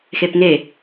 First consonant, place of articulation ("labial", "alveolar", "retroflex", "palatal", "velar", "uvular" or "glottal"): velar